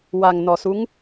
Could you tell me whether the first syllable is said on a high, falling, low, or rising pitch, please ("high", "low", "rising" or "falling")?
low